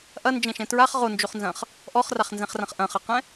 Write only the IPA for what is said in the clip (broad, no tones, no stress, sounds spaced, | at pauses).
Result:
ʔ ɐ n d͡ʒ ɛ̃ ʃ ɛ̃ t ɹ a χ ʁ o n d͡ʒ o χ n z ɐ̃ χ | ʔ ɔ χ r a χ n z ɛ̃ χ r ɐ̃ χ ʔ ɐ̃ χ ɐ q ɛ̃